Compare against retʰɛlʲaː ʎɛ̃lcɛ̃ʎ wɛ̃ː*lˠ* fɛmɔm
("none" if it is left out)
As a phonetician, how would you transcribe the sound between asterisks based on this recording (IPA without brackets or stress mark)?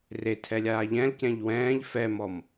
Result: ʎ